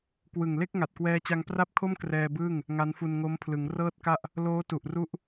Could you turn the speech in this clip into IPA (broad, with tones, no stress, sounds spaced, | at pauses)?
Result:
k w ɯ˨˩ ŋ l e˥˩ k̚ ŋ a˨˩ t̚ k w ɛː˧ t͡ɕ a˧ ŋ p r a˥˩ p̚ kʰ o˥˩ m k r ɛː˧ b ɯː˥˩ ŋ | ŋ a˦˥ n f u˧ n ŋ o˦˥ m pʰ l ɯ˩˦ ŋ r ɤː˥˩ t̚ k a˥˩ ʔ | l oː˦˥ t u˨˩ ʔ r u˦˥ ʔ